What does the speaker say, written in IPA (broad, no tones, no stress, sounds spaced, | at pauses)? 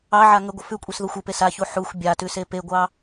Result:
ɑ ʕ a ŋ ə ɡʷ ə f ʉ kʷʼ e s ð o xʷ ə p e s a ç u ħ u xʷ bʲ a t ʉ s e p e ɡʷ ɑ